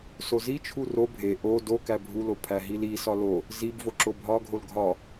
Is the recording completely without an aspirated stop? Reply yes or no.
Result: no